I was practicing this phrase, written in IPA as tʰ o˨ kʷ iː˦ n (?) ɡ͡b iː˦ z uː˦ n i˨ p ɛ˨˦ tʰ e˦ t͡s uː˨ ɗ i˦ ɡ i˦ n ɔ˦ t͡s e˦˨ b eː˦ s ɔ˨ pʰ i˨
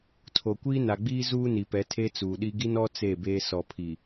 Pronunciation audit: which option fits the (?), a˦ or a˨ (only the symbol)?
a˨